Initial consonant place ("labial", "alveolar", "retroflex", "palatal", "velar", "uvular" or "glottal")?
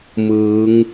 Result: labial